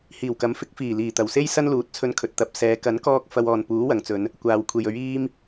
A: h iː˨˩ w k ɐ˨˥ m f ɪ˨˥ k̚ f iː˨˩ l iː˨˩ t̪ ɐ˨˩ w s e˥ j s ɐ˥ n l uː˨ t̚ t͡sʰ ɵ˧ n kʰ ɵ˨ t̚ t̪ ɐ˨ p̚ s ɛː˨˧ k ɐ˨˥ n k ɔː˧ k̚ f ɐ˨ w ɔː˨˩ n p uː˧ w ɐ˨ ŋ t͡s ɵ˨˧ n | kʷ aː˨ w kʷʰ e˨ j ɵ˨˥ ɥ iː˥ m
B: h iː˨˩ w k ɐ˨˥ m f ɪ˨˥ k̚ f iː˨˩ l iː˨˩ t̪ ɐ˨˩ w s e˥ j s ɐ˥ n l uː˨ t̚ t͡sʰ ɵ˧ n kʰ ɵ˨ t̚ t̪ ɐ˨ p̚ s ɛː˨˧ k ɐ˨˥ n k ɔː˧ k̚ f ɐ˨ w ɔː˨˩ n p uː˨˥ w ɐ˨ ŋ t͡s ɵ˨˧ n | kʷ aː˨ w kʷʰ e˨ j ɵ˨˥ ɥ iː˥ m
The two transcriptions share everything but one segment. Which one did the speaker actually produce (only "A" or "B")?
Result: B